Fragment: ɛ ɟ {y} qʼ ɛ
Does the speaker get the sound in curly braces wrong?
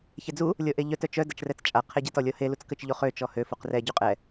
no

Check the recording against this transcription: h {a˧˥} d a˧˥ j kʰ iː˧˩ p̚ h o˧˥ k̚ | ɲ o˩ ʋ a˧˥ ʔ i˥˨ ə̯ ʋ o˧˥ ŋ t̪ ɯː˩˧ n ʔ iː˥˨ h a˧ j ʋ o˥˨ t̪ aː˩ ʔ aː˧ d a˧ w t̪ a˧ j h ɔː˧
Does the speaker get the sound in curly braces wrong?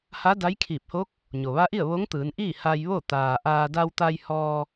no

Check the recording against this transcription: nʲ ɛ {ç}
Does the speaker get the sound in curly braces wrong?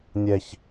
no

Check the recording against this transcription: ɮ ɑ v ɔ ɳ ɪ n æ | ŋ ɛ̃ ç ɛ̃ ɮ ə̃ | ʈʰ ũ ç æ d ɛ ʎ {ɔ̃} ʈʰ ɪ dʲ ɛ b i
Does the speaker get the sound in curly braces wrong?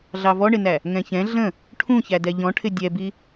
no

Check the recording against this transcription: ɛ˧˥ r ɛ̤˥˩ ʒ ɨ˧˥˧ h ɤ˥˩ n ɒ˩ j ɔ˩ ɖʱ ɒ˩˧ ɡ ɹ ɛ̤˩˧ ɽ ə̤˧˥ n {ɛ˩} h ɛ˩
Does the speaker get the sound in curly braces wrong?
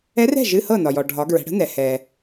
no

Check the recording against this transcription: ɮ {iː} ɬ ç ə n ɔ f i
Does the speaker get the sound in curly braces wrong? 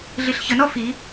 yes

